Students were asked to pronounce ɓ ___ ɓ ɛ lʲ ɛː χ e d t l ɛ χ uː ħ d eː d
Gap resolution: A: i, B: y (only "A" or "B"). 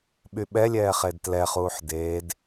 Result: B